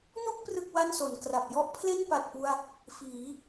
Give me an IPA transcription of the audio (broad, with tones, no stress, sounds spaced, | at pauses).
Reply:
n u˥˩ k̚ p r ɯ˥˩ k̚ w a˥˩ n s o˩˦ n k r a˨˩ p̚ j ɔ˥˩ ʔ pʰ l e˥˩ n p a˨˩ t̚ p u˧ a̯ | f iː˩˦